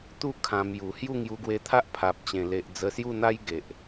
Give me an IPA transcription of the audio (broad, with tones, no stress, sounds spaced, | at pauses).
t̪ u˥˧ kʰ ã˧ m j u˨˩ h j u˥˧ ŋ j u˧ ɡ w e˧ t̪ʰ a˦ ʔ pʰ a˨ p̚ t͡ɕ ẽ˨˩ l e˨ ʔ d͡z ə˧ s j u˥˧ n̪ a˦ j ɡ e˨ ʔ